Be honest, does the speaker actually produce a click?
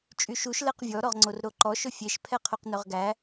yes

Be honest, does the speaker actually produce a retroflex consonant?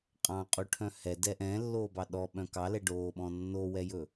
yes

